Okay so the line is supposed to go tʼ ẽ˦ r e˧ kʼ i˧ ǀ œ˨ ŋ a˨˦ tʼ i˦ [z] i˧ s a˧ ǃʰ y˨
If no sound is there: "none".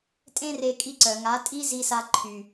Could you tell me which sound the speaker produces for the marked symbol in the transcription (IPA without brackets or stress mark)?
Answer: z